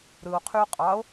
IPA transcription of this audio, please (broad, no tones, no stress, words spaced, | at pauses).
ɾɯo̯qʰyo̯ qʼɑo̯